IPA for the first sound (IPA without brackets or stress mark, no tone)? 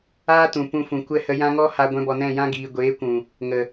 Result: aː